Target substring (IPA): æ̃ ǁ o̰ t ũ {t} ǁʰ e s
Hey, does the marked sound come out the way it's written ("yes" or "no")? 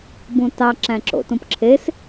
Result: no